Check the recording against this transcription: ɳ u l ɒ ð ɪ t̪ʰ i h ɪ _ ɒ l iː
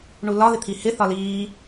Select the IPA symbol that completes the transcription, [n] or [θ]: θ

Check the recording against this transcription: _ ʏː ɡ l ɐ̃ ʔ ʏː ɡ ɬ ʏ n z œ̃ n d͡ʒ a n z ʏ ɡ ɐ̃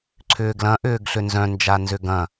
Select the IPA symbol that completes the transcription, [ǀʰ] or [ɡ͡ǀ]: ǀʰ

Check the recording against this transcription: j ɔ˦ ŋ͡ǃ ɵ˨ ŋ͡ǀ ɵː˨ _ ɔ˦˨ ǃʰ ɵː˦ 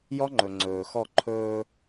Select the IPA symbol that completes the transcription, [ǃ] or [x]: x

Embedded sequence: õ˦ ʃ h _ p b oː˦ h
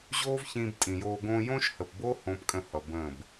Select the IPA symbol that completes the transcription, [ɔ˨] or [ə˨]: ə˨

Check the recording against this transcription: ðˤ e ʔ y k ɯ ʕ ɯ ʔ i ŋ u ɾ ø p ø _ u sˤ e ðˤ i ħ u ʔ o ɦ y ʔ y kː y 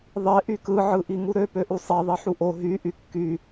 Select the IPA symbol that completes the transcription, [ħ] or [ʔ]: ʔ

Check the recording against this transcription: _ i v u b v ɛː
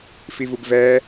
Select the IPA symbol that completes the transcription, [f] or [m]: f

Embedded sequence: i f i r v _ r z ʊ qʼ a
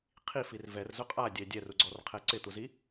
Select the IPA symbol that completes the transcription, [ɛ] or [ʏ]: ɛ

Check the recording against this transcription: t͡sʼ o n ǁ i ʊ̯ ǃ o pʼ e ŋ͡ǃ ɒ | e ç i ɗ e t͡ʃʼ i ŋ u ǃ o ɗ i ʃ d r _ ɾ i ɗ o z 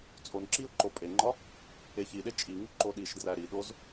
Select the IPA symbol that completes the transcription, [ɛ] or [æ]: æ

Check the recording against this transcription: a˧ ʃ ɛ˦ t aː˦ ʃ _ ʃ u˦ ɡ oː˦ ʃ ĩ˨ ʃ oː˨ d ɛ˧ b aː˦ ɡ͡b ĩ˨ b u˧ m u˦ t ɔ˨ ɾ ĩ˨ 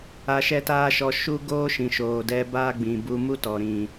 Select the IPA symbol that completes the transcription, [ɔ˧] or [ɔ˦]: ɔ˧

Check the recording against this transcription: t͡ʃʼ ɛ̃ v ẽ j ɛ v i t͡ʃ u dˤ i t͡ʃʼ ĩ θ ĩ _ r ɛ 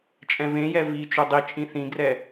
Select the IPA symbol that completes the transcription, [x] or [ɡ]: ɡ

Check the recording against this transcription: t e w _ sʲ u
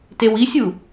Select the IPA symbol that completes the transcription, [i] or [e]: i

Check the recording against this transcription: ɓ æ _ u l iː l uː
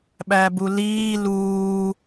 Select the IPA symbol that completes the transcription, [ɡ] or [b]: b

